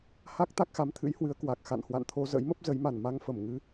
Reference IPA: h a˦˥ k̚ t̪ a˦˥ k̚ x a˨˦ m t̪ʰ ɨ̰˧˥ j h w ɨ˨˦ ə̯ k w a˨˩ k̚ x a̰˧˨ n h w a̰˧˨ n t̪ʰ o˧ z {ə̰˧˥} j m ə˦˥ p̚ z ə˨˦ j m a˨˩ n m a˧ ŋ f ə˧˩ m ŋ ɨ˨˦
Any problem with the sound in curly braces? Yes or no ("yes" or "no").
no